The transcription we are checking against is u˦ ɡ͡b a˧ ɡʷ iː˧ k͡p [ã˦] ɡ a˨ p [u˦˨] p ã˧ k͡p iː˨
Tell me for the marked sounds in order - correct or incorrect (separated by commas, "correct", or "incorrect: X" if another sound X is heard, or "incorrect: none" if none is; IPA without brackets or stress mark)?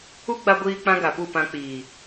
correct, correct